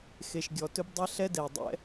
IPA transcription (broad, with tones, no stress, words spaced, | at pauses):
xe˩ʃɡʲɔ˩tɵ˥bdˤe˥ ɬɛ˥dɛ˩dˤɛ̰˥